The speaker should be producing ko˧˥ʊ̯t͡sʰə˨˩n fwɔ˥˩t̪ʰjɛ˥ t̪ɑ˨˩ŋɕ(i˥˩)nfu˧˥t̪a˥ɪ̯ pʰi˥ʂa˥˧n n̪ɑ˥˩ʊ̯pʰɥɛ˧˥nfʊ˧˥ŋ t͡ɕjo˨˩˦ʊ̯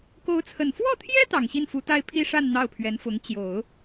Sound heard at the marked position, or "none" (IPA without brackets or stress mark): i˥˩